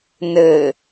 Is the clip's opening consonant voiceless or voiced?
voiced